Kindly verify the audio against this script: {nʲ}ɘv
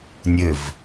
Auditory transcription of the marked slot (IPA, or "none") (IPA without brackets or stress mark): nʲ